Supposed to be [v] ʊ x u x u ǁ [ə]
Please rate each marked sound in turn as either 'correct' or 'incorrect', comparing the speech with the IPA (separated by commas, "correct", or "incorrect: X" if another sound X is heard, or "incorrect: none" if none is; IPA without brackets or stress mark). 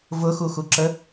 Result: correct, correct